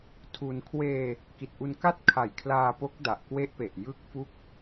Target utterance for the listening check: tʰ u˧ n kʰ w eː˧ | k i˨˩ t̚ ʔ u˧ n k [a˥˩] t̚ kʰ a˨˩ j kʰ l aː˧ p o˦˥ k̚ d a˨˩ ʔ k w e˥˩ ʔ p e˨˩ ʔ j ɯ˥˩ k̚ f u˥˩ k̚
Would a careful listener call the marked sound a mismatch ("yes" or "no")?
no